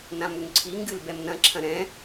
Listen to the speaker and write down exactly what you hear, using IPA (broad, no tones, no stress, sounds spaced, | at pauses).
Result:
n ã m u ŋ ǀʰ i ŋ ɡ ɨ l b ɛ m n ɐ̃ ǁʰ ɐ̃ ɾ ɛ̃